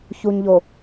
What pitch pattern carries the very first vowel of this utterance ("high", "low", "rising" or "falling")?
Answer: low